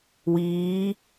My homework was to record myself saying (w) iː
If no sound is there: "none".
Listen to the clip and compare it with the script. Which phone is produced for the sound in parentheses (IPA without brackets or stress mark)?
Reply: w